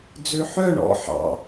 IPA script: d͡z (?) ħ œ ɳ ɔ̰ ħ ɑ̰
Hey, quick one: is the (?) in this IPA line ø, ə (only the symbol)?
ø